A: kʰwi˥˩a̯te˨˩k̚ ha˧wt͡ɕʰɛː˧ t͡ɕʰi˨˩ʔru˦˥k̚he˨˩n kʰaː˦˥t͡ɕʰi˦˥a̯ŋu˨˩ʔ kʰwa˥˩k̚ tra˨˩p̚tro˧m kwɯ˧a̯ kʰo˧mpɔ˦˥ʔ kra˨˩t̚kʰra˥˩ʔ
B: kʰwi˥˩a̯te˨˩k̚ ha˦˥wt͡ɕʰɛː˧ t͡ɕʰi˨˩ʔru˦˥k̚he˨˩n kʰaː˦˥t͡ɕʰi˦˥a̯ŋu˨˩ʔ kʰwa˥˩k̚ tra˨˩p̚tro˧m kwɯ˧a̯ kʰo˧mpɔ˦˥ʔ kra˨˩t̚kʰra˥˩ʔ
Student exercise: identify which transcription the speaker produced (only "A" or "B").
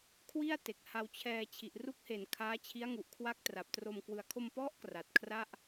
A